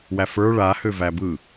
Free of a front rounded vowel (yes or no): no